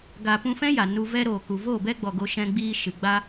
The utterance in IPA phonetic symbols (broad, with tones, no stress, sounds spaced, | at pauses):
ɡ a˨ p ũ˧ f ɛ̃˦ j a˨ n u˧ v ɛ˦ ɾ oː˨ k u˨ v oː˦˨ b ɛ˦ ɡ͡b ɔ˨ ɡ o˧ ʃ ɛ̃˧ ɡ͡b iː˧ ʃ ɨ˨ ɡ͡b a˦